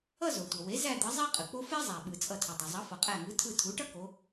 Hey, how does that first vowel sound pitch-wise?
falling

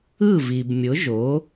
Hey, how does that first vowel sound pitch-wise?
falling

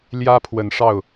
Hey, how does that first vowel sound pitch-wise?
high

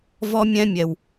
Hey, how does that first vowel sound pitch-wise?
high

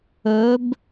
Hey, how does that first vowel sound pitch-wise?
rising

